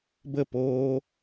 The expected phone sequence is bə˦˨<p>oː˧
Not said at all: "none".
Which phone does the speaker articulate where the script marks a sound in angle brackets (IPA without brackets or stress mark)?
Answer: p